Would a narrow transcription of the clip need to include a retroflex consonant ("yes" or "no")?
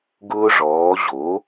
yes